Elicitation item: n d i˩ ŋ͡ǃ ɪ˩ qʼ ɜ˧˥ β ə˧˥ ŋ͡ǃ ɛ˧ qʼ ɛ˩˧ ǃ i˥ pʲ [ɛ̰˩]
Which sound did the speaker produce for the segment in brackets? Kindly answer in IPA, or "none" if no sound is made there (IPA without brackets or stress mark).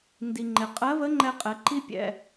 ɛ̰˩